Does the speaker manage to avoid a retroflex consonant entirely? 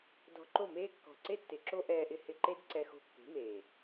yes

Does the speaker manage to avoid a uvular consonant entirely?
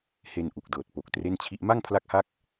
yes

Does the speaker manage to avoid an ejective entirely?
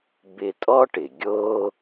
no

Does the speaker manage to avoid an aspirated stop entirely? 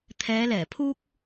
no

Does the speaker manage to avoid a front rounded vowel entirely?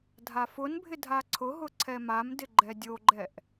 yes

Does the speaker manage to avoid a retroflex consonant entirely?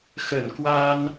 yes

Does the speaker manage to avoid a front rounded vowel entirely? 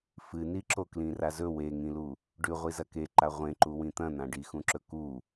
yes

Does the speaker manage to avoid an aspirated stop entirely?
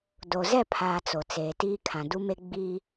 no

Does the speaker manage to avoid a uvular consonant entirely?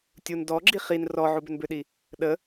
no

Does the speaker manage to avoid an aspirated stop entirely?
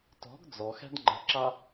yes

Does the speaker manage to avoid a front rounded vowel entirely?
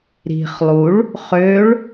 no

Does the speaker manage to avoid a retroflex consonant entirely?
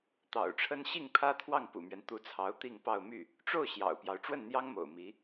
no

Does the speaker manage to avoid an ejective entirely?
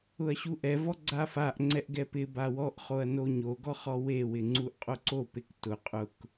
no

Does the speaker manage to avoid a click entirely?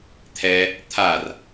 yes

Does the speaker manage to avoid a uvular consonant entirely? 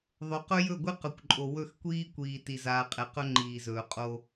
no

